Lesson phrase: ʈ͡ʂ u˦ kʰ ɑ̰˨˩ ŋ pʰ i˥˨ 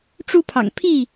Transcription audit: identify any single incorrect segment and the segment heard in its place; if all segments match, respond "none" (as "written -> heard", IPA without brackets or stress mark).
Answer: kʰ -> pʰ